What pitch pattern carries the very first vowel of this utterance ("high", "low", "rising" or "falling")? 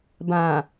low